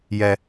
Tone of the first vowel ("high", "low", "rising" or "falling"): high